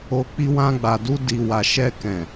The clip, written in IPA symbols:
o˧ k͡p i˧ w ã˧ ɡ͡b a˨ d u˧ d i˨ w a˨ ʃ ɛ˧ k ɛ̃˨

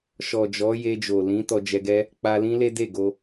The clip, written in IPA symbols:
ʃ ɔ˨ d͡ʒ ɔ˨˦ j e˧ d͡ʒ o˨ l ĩ˨˦ t ɔ˧ d͡ʒ ɛ˧ ɡ ɛ˦ | k͡p a˧ l ĩ˦ l e˦ d e˦˨ ɡ o˧

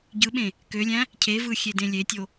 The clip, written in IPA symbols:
ɟ ɯ ɓ ẽ | k ø lʲ æ̃ | cʰ e v ɯ xʲ e d ẽ lʲ e tʲ o

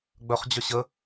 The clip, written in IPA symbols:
ɡ͡b œ χ d͡ʑ œ ɕ ə

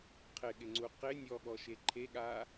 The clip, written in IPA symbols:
qʰ ɪ ɠ ɪ ŋ͡ǀ u q ɪ nʲ ɔ ɠ ɔ ʃ e ǃʰ e ɠ a

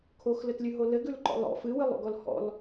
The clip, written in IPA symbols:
kʰ o x l ɘ t lʲ ʉ ɦ o l ɘ ɡ ʉ l ǃ ɔ̰ lˠ ɔ̰ f ɨ w ɨ lˠ o̰ ɡ ɔ l h ɔ̰ l

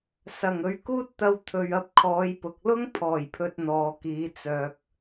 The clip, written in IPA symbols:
s ɐ˨˩ ŋ ɵ˨˥ ɥ k uː˥ t̚ t̪ ɐ˧ w t̪ʰ ɵ˨ ɥ ɐ˧ p̚ kʰ ɔː˨˧ j p ʊ˨ k̚ l ʊ˥ ŋ pʰ ɔː˨˩ j pʰ ɵ˨ t̚ n̪ ɔː˨ k iː˨˧ t͡s œː˨ k̚

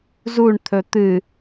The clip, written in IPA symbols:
z u ɳ t̪ʰ ɵ t̪ ɨ

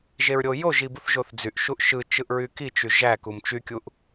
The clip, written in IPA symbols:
ʒ e ɹ ɾʲ o j o ʒ i b u θ ʒ o θ d͡z y ʔ ʃ u ʔ ʃ ɯ t͡ʃ ɯ ʔ ɹ y k i t͡ʃ y ʒ æ k u m t͡ʃ y kʲ u ʔ

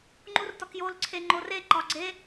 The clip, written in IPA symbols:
ŋ͡ǃ u r t ɒ k j o l ǀʰ e ŋ͡ǃ o r e ǃ ɒ ɡ͡ǀ e

